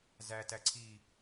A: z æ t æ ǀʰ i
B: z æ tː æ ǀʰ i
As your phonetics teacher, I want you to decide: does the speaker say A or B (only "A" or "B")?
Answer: A